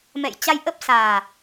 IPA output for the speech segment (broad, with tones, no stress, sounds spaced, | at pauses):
m ɛ̰˧˨ j t͡ɕ a˧ j ʔ ə˦˥ p̚ s aː˨˩